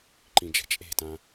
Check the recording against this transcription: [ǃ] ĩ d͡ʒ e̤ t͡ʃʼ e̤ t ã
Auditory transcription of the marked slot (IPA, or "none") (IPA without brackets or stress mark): ǃ